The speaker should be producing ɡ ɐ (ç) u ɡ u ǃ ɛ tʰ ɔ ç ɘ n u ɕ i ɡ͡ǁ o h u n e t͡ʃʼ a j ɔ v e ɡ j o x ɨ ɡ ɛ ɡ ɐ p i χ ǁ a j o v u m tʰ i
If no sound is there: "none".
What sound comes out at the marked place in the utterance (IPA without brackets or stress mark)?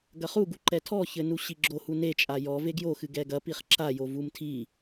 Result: χ